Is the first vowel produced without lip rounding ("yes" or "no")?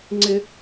yes